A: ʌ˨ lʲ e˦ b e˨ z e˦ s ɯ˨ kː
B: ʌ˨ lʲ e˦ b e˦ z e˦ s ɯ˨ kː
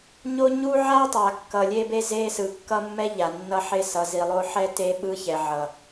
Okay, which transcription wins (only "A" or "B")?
B